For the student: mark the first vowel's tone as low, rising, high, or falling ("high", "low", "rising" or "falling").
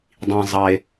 low